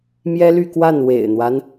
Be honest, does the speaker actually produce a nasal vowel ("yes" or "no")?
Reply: no